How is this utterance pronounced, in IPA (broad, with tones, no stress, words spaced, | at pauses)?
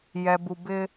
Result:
jɛ˧bu˧bɪ˦